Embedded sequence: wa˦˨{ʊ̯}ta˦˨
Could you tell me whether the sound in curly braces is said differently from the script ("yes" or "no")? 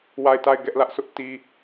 yes